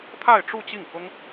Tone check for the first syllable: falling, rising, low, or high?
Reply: falling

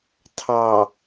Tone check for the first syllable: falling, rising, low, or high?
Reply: low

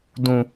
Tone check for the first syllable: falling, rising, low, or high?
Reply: low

